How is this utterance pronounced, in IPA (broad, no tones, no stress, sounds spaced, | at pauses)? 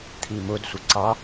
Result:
t̪ʰ i m ʊ d sʷ ə ǀ ɑ